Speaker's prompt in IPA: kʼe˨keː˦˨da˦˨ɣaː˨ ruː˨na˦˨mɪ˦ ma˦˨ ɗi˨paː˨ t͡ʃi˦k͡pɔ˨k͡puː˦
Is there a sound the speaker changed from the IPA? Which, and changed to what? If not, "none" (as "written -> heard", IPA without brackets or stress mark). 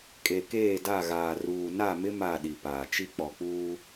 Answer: none